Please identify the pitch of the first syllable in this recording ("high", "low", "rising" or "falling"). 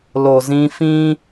low